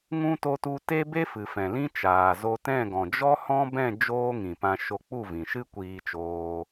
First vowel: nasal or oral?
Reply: nasal